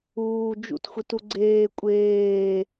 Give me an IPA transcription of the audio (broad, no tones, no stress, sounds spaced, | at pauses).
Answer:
uː d͡ʒ ṵ t xʷ i t u ɡ͡ǀ eː kʷʼ eː